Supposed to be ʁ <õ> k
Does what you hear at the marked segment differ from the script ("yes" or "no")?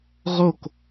yes